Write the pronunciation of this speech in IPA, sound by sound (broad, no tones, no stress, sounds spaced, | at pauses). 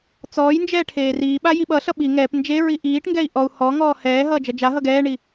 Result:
t͡s ɔː j n d͡ʒ ɛː ʈʰ eː r iː ɓ a j i ɓ ʌ ɬ ʌ ɓ i ŋ ɛː p n d͡ʒ e ɹ i ʔ iː ʈ ŋ ɡ ɛ i̯ ʔ ɔ u̯ h ɔ ŋ ɔː h ɛː ɦ ʌː d͡ʒ ʌ d͡ʒ a ɦ ʌ ɡ ɛː ɳ i